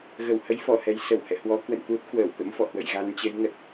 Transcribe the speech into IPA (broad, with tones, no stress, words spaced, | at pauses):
ɣə˧˩whə˨˦jfɔ˧˩hɛ˨˩j sə˧˩whɛ̰˧˨ hwɔ˨˦kwə̰˧˨nt̪u˦˥t̚ kwəː˧˩wt̪ə̰˧˥mfɔ̰˧˨hwə̰˧˨j ɣa˨˦nt͡ɕə˨˦j ŋə˨˩t̚